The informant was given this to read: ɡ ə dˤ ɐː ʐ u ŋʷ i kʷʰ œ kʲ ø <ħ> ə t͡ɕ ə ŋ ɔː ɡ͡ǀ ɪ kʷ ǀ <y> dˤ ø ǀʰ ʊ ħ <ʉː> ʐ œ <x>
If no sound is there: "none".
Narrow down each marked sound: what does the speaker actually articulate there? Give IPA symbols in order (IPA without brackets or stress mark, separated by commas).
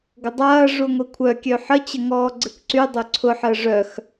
ħ, y, əː, x